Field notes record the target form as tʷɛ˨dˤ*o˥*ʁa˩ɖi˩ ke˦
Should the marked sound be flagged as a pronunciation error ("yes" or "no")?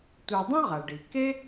yes